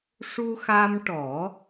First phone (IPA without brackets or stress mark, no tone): ʂ